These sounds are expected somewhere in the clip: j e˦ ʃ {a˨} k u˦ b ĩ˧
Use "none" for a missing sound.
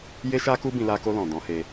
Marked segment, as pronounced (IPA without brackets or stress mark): a˦